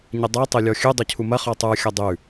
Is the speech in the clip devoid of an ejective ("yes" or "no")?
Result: yes